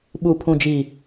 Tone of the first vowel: low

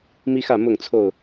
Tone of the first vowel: high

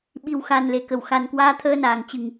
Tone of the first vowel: low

